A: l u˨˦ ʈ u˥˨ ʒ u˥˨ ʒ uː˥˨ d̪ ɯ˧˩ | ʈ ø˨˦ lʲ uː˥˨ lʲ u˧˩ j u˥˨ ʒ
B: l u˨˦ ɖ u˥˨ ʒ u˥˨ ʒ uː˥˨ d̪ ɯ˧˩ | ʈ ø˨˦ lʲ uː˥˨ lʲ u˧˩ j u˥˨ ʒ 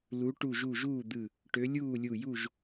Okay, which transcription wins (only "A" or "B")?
A